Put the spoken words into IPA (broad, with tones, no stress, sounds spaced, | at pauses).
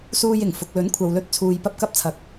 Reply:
s uː˧ j ɪ˨˩ ŋ f ʊ˨ k̚ l ɵ˨˥ n kʷʰ ɐ˨ w l ɵ˧ t̚ t͡sʰ uː˨ j p ɐ˧ p̚ k ɐ˧ p̚ t͡sʰ ɐ˨ k̚